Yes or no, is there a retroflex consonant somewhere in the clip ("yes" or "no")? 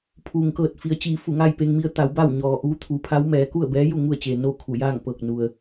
no